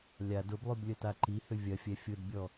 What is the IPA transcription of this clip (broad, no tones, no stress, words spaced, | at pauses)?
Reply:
lʲad ʊblˠyb lʲətaǃihʏ vʲɐfʲɛ fʲʊdbʲɔ